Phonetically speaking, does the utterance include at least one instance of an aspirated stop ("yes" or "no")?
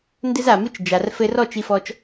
no